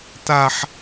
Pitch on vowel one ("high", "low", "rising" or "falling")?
high